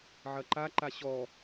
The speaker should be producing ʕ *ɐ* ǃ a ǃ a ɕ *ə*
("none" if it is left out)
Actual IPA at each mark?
ɐ, ɔ

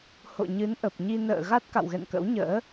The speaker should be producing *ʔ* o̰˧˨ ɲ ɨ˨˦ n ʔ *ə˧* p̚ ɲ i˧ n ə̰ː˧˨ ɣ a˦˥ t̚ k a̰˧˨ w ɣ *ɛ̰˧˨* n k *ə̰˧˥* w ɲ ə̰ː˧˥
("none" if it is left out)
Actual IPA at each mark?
h, ə˨˩, ɛ̰˧˨, ə̰˧˥

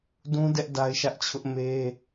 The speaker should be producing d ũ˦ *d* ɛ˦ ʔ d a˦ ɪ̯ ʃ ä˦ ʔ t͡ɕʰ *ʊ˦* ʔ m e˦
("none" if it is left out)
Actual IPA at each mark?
d, ʊ˦

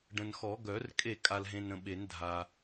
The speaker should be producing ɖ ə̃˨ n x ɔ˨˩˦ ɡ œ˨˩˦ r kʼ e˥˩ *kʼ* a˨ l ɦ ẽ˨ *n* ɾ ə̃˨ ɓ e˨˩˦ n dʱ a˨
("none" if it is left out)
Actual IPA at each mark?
kʼ, n

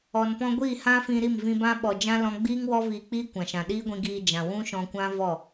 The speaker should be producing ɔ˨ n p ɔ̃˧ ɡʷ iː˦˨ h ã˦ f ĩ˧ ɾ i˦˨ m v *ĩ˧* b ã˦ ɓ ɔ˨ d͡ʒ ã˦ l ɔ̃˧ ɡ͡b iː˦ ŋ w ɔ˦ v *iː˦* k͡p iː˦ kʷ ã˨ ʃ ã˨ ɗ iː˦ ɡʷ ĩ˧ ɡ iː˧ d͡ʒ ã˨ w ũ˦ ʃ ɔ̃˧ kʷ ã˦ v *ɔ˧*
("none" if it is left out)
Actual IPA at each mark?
ĩ˧, iː˧, ɔ˦˨

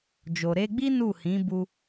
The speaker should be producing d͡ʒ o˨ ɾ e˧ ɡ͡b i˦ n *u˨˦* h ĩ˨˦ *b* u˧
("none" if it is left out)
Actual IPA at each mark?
u˦˨, b

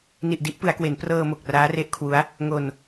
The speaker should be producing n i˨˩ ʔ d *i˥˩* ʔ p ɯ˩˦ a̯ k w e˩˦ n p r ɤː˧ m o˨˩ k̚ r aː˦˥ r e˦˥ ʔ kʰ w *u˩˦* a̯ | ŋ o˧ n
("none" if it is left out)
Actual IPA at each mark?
i˦˥, u˦˥

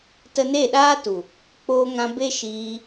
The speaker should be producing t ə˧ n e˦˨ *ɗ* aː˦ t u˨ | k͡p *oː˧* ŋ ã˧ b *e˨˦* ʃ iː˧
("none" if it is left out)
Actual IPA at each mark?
ɗ, oː˧, e˦

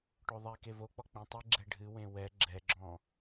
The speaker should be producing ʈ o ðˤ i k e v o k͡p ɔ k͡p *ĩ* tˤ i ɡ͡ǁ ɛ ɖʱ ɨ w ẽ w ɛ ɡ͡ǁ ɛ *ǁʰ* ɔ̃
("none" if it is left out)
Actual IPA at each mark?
ĩ, ɡ͡ǁ

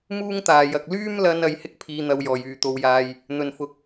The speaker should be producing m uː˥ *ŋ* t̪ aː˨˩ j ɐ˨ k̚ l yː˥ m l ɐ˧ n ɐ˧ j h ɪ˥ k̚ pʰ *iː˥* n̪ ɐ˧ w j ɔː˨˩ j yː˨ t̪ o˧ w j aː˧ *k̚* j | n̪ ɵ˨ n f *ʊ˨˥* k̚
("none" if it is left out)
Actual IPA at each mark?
ŋ, iː˧, none, ʊ˨˥

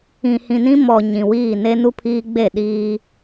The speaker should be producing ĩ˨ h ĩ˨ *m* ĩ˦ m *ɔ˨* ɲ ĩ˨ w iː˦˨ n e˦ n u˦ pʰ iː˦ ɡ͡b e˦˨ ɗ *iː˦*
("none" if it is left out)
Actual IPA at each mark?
n, ɔ˨, iː˦

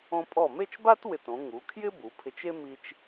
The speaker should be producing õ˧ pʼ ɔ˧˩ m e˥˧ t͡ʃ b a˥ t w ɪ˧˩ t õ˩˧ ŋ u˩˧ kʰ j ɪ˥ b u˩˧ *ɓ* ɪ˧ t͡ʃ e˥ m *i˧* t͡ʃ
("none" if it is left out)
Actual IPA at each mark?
pʰ, i˧

